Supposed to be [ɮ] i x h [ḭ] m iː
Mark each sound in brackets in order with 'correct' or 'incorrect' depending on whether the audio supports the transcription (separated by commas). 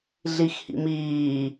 correct, correct